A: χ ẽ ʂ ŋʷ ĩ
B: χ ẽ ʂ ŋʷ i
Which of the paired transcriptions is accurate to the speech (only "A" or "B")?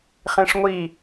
B